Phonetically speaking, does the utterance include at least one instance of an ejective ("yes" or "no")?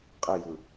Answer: yes